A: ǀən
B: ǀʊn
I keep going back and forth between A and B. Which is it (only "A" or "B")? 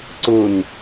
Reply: B